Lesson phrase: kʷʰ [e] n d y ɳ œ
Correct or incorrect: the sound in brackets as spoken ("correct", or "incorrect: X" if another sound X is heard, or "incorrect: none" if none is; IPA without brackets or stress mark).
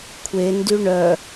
correct